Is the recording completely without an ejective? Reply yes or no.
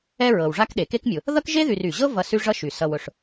yes